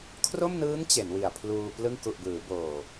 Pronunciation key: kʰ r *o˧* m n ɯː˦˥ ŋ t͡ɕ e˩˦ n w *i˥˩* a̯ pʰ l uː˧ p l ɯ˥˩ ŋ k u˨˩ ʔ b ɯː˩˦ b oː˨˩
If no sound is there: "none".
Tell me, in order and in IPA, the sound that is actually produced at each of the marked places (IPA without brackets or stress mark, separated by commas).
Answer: o˥˩, i˨˩